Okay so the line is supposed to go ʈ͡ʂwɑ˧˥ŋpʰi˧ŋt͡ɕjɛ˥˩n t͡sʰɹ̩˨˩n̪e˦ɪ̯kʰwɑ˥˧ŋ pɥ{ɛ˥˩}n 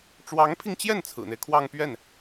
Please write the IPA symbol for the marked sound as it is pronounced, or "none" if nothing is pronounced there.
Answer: ɛ˥˩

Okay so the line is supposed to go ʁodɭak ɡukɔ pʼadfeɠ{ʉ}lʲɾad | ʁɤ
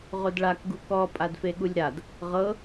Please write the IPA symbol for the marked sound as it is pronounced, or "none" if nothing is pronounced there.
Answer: u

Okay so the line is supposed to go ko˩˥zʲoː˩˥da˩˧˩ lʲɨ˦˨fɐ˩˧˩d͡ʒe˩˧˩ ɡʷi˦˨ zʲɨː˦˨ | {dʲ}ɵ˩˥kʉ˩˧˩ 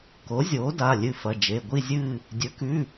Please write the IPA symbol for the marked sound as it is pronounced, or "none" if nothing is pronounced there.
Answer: dʲ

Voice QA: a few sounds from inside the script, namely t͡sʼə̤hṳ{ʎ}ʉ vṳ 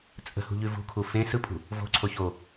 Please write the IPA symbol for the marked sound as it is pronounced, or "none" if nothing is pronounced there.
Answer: ʎ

